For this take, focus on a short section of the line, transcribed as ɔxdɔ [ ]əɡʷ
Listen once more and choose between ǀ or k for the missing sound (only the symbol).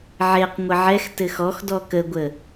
k